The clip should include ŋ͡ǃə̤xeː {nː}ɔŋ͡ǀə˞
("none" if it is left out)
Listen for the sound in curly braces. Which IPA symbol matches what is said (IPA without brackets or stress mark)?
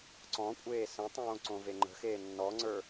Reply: nː